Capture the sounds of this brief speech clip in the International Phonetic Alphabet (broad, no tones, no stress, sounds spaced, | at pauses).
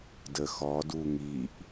d ə x ɔ d u ŋ i ʔ